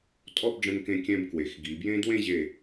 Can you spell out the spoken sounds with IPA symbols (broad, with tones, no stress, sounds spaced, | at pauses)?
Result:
tʼ ɔ˥˧ b ɖ͡ʐ ə̃˧ n k ẽ˧ kʲ ɛ̃˧ b k w e˩˧ x ɡ i˩˧ b j ẽ˥ d w ẽ˥˧ ʑ e˧˩